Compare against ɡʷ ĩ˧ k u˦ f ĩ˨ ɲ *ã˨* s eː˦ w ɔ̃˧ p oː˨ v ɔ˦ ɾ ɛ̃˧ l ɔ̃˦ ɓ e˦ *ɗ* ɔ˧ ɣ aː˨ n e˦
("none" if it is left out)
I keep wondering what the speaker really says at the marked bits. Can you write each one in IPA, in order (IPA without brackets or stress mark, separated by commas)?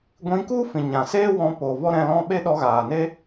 ã˨, ɗ